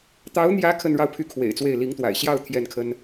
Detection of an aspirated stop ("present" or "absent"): present